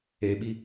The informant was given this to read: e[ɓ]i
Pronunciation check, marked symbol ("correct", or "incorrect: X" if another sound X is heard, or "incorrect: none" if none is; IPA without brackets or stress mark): correct